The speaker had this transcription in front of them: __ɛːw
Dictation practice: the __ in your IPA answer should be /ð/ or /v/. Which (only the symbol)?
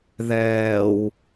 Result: ð